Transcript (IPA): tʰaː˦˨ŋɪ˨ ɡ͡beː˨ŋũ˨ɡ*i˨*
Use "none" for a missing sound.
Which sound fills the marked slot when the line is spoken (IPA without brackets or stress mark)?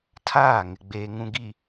i˨